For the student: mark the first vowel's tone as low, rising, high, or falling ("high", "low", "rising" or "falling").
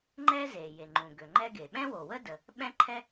high